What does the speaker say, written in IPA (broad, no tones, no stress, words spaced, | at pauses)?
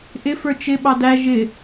ʔɪfə˞ t͡ʃɪ ɓɑdæ ʒɪ